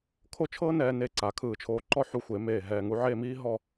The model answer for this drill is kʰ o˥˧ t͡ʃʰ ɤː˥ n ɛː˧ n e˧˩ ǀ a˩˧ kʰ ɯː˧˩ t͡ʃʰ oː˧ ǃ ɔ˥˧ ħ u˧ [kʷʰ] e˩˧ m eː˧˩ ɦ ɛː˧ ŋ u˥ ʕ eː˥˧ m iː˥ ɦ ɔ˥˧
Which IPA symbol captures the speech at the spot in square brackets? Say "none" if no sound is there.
xʷ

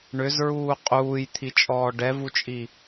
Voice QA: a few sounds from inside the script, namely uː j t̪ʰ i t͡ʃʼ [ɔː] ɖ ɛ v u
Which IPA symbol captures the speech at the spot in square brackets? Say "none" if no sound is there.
ɔː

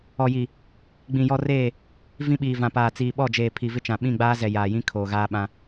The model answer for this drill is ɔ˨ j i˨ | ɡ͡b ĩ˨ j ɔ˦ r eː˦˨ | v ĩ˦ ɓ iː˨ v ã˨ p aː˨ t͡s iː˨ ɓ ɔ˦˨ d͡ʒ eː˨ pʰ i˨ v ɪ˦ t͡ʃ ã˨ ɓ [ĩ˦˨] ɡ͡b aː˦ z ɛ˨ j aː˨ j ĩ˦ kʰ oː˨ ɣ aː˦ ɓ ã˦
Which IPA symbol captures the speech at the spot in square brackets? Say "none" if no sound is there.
ĩ˦˨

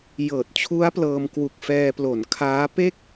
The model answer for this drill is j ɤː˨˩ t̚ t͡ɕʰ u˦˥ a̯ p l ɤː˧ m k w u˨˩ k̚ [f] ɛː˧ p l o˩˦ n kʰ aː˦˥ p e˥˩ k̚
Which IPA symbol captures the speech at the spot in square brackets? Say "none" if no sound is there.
f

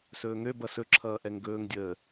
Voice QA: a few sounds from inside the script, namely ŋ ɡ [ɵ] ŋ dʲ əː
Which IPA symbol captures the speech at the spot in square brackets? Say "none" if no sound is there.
ɵː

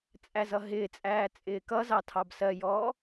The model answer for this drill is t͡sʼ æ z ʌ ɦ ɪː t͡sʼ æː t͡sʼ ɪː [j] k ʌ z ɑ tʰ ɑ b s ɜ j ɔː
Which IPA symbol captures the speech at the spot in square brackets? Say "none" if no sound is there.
none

